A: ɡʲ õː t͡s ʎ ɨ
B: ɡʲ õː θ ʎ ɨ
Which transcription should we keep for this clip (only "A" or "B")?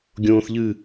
B